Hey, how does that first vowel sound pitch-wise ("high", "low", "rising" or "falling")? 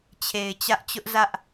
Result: low